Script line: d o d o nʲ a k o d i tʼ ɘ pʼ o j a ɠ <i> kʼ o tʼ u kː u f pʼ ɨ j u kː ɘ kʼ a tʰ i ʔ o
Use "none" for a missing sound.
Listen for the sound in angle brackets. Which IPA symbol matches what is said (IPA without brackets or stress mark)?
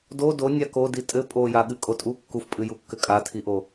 ɨ